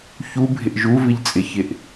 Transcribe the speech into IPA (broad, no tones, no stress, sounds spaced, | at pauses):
ç u bʱ ɪ ʔ ʒ u v ɪ ʎ t͡sʼ ɪ ç ɪ ʔ